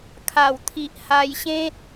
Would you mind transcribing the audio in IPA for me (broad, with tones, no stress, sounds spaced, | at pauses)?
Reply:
kʰ a˨˩ w t̪ʰ i˨ ʔ h a˧ j ɕ ẽ˦ t̚